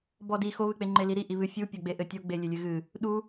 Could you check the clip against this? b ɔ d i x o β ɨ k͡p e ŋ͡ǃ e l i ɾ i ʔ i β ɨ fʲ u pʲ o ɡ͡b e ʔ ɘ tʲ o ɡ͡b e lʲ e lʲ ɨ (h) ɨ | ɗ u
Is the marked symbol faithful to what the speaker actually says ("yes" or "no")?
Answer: no